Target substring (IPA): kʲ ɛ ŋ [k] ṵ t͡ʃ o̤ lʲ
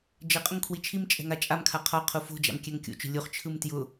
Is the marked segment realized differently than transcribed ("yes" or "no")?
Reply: yes